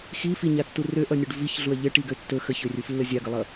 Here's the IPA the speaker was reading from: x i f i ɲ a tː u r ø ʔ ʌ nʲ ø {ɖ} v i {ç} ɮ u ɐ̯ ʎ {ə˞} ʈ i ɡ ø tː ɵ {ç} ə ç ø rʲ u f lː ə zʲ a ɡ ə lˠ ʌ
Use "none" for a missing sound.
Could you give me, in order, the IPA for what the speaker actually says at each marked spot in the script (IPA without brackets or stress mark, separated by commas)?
ɖ, ç, ə, x